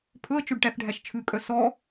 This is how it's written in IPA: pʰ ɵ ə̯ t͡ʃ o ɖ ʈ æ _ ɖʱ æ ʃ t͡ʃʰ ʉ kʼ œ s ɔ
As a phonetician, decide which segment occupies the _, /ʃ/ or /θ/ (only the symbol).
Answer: θ